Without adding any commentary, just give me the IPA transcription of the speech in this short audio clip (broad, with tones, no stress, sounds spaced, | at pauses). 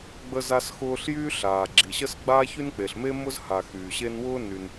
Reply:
ɡ͡b ə˥ z a˥ s x ʊː˥ ɬ j yː˥ ɬ aː˩ ɡ͡ǁ i˩ ɕ ə˥ s ɡ͡b a˥ ç y˥ n k͡p e˩ ɬ m e˥ m ʊ˥ z h a˩ x yː˩ ɕ e˥ n w ʊː˥ n y˩ n